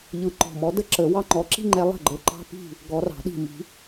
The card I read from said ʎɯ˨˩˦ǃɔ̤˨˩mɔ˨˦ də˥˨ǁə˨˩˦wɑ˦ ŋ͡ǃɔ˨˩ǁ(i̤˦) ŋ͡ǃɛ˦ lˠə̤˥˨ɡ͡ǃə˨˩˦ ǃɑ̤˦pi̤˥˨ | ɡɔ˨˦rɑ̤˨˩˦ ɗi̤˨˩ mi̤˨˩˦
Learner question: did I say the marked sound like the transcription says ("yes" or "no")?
no